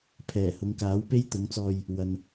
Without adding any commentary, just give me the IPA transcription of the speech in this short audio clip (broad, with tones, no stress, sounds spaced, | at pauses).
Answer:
pʰ ɛː˨˩ h ʊ˨˧ ŋ k aː˨˥ w p e˥ j t̪ ʊ˨˥ ŋ t͡s ɔː˧ j | w ɐ˨ n